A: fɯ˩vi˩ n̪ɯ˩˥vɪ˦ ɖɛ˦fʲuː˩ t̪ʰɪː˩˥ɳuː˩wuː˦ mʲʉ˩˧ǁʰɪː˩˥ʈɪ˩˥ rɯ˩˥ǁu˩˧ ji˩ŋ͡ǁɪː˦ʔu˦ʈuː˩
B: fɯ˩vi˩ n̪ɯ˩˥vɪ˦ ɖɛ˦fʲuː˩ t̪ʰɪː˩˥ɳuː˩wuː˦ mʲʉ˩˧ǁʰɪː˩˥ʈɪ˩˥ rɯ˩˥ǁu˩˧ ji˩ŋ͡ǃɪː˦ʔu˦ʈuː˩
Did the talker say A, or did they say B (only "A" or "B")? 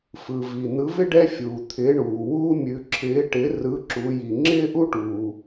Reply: A